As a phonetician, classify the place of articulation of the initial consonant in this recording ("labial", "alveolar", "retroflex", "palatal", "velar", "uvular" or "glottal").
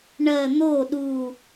retroflex